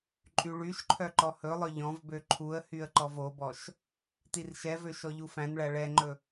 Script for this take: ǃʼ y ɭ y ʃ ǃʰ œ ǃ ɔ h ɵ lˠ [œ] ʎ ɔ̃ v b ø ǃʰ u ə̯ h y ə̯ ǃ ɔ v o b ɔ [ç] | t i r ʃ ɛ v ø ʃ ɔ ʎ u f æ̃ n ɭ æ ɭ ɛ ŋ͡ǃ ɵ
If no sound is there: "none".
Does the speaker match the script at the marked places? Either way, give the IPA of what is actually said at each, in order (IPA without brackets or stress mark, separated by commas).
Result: œ, ʃ